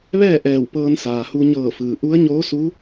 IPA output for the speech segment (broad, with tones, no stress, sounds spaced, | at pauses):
ʋ ɛː˥˨ ʔ ɛː˧˩ w p ɤː˧ n s aː˩ h u˧ ɲ ɤː˧˩ f ɯː˩ ʔ u˧˥ ə̯ ɲ oː˧˥ s u˧˥